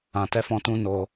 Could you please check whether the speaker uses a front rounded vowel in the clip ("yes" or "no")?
no